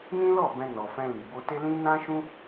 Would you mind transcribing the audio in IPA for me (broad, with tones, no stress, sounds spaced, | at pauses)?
n ĩ˦ l ɔ˦˨ b ɛ̃˧ n ɔ˨ f ɛ̃˧ l i˨ b o˧ t e˦ l ĩ˦ n ã˦ ʃ ũ˦